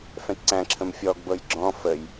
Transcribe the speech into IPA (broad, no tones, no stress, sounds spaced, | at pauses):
f ɛ̃ t ǀ æ̃ ǁʰ ə̃ m fʲ ɔ ɡ b ɤ j ɡ͡ǁ ɔ̃ f ə j